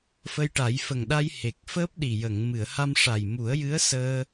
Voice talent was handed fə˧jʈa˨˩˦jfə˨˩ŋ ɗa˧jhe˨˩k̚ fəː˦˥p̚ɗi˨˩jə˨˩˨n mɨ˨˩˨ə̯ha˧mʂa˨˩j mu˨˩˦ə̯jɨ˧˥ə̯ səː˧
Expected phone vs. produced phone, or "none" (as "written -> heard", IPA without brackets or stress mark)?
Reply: n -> ŋ